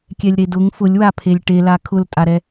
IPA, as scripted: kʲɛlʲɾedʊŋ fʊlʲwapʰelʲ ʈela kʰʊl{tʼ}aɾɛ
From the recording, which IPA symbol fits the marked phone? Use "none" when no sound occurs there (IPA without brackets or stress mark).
tʼ